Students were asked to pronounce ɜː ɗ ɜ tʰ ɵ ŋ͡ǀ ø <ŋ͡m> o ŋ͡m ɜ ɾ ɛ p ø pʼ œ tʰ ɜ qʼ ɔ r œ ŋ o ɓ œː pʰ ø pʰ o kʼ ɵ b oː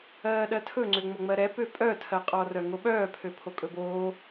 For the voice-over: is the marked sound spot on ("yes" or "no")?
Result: yes